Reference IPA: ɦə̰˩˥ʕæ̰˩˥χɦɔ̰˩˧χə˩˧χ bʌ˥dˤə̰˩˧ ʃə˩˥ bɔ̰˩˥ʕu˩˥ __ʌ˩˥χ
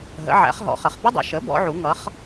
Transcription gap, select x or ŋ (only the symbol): ŋ